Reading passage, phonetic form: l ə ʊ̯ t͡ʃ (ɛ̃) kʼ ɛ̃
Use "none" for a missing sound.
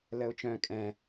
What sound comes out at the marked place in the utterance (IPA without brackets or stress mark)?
œ̃